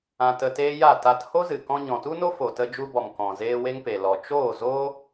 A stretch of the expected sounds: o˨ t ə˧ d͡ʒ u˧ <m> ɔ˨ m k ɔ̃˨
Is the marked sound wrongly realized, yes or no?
yes